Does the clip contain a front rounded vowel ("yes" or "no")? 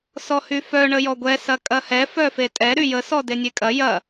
yes